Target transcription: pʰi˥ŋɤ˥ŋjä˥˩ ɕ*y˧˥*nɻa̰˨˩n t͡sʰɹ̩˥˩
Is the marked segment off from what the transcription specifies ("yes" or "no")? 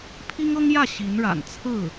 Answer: yes